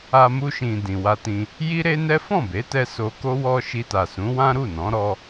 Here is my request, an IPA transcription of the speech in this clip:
a˧ m u˧ ʃ ĩ˨ d ĩ˨ w a˧ t ĩ˧ | j i˦ ɾ e˦ n ɛ˦ f ɔ̃˦˨ b e˨˦ t ɛ˧ s o˧ k o˦ w ɔ˦ ʃ i˧ t a˨ s ũ˨˦ w ã˦ ɾ u˦˨ n ɔ̃˨˦ ɾ ɔ˧

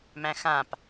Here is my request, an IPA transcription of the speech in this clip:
m æ̃ x ã p

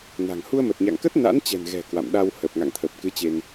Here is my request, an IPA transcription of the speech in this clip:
n a̤˨˩ ŋ h u˧ ə̯ m ə˨˩ t̚ ɲ a̰˧˨ ŋ k ə˦˥ t̚ n a̰˧˥ n t͡ɕ ɛ̤˨˩ n ɣ ɛ̤˨˩ k w a̰˧˨ m ɗ a˧ w h ə˨˩ p̚ ŋ a̰˧˨ ŋ t̪ʰ ə˨˩ p̚ k ɨ˨˦ t͡ɕ e˧ n

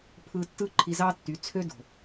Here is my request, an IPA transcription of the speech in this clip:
pʰ ɯ˧ tː ɯ˦ ǃʰ i˧ z ɑ˦ tː y˨˦ t͡sʰ ø˦ d o̤˨

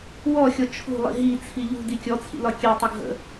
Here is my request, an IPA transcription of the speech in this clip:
w ɔ xʲ ɔ t͡ʃʰ ṳ lˠ ḭ ɦ i t͡sʰ i ʎ ṳ d i kʲ ɔ t͡sʰ ḭ l ɒ kʲ e tˤ u ɡʱ ə̰

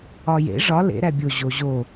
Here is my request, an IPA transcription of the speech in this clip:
ɒ j ḛ ʐ ɒ l ḛ ɾ æ bʲ o ʑ o ʑ o

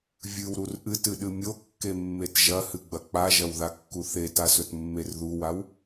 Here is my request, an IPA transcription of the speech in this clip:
vʲ ɨ w ɾ u r ʔ ɨ t ɨ ɗ ɨ mʲ o kː e mː e t ʒ ɐ h ɨ ɡ͡b ɐ k͡p a ʒ ɐ w ð a kː u θ e t a s ɵ t mː e r ð u w a w

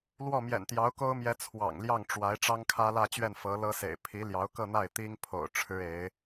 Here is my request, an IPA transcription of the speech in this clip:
l w ɔ˥˩ m j ɛ̰˨˩ n t̪ j ɑ˧˥ ʊ̯ k o˥ ʊ̯ m j ɛ˧˥ t͡sʰ w ɑ̰˨˩ ŋ l j ɑ˥˩ ŋ ʈ͡ʂ w a˧˥ ɪ̯ ʈ͡ʂ ɑ˥ ŋ kʰ ä˥ l ä˥˧ t͡ɕ ɥ ɛ˥˩ n f ɤ˧˥ l ɤ˥ s ḛ˨˩ ɪ̯ pʰ i˧˥ l j ɑ˧˥ ʊ̯ k ɤ˥˧ n̪ a˥˩ ɪ̯ t̪ i˥ ŋ pʰ o̰˨˩ ʊ̯ ʈ͡ʂʰ ɻ̩˥ e˧˥ ɪ̯

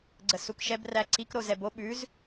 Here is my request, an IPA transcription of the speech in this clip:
ɡ͡ǀ ə s u k ʃ ɛ b r æ ǀ i k ɾ o z ɛ b o ɓ ʉ z

